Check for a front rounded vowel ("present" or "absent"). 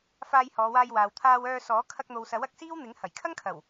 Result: present